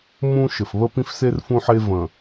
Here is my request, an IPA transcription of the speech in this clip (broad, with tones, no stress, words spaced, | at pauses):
mũ˦ʃɘ˨f βə˦pĩ˦fse˦r fũ˦ħe˦ və̃˨